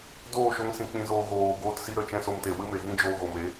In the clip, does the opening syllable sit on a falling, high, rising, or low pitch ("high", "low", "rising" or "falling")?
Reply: falling